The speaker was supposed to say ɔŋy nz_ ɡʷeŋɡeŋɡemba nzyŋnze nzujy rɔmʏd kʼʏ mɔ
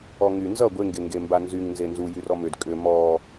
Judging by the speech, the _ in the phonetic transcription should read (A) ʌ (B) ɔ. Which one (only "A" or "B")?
A